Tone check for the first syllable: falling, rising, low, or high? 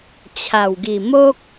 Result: low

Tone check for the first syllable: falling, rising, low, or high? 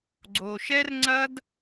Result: low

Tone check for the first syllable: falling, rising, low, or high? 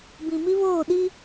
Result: low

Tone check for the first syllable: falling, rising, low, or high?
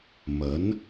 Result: rising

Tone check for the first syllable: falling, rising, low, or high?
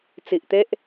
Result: low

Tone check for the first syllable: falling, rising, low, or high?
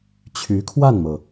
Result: rising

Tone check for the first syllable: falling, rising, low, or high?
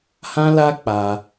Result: high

